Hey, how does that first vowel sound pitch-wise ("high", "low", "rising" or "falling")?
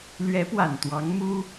rising